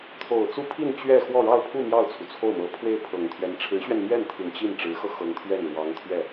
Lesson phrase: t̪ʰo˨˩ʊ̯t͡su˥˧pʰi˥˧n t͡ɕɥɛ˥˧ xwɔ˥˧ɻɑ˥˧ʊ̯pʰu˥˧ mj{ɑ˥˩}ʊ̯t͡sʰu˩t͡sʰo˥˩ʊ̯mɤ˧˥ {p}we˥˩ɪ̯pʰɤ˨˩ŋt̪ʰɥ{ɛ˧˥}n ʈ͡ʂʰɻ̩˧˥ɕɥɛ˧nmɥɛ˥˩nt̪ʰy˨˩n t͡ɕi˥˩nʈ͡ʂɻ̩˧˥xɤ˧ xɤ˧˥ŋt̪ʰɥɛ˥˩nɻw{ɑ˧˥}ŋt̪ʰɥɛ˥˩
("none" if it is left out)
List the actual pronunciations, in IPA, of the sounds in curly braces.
ɑ˥˩, pʰ, ɛ˧˥, ɑ˧˥

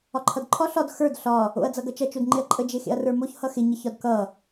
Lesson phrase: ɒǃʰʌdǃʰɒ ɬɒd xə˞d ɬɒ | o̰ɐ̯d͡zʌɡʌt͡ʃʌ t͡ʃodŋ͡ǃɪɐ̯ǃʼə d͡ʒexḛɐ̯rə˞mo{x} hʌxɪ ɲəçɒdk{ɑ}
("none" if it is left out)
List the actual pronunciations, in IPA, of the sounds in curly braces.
ç, ʌ

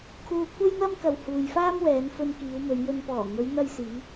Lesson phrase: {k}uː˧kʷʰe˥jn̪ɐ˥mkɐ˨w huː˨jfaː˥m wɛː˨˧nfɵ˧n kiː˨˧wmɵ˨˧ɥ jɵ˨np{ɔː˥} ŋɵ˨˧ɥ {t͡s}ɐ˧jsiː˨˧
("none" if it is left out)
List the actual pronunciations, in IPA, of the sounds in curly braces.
kʰ, ɔː˨˩, n̪

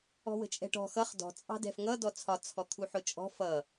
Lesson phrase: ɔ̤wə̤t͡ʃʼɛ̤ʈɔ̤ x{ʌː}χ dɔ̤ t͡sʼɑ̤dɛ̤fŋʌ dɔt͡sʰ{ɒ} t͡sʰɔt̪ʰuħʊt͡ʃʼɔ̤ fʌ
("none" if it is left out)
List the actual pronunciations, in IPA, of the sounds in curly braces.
ʌ, ɒ

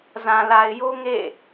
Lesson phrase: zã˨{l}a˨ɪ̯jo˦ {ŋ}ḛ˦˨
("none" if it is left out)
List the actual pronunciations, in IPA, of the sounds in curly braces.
l, ŋ

